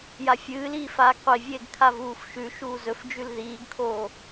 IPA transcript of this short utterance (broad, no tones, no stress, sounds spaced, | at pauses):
j a fʲ ɨː l iː f aː ɡ qʷ i vʲ eː ɡ kʰ a v uː f ʃ ʉ ʃ uː z ɵ f d͡ʒ ʉ l ð iː ɡ kʰ oː